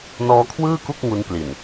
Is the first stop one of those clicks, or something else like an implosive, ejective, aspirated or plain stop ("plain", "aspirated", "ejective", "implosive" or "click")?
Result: aspirated